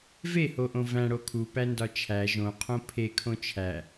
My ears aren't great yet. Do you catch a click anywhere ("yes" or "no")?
no